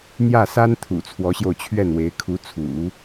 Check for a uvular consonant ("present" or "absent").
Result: absent